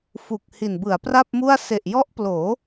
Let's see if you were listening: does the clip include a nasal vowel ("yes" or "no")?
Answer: no